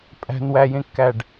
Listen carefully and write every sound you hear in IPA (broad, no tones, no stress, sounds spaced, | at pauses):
pʼ æ̤ n w æ j ẽ kː æ ɖ